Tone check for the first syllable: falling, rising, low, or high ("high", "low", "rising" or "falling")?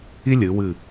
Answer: high